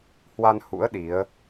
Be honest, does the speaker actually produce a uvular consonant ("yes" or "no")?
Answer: no